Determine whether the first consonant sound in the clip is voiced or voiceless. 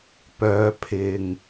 voiceless